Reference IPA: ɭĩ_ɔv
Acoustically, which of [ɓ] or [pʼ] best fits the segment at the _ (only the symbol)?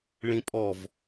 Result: pʼ